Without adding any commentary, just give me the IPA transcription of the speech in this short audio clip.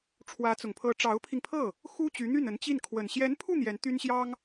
ʈ͡ʂʰ w ä˧˥ t͡s ʊ˨˩ ŋ pʰ ɤ˧˥ ʈ͡ʂ ɑ˧˥ ʊ̯ pʰ i˧ ŋ pʰ ɤ˥˩ | x u˥ t͡ɕ y˧˥ n̪ y˥˩ n ə˧˥ n t͡ɕ i˥˩ n kʰ w ə˨˩ n ɕ j ɛ˧˥ n pʰ u˥˩ n̪ j ɛ˧˥ n t̪ y˥ n ɕ j ɑ˥ ŋ

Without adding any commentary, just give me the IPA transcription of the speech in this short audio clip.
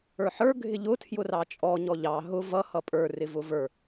ə˞ ħ ə˞ ɡʱ ɪ ʎ ʊ tʰ j ʊ r ɑ t͡ʃʼ ɔ ɲ ɔ ʎ ɑ ɦ ʊ v ʌ h ʌ pʼ ə˞ r ɪ v ʊ v ə˞

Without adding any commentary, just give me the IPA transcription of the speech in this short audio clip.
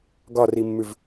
ɡ ɒ r i mː ʉ v

